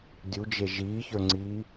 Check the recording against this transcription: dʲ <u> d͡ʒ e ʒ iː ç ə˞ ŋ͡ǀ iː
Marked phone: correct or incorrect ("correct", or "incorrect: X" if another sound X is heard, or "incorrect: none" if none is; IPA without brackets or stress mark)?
correct